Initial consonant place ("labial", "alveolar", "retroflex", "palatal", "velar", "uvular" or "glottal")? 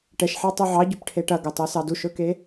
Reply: retroflex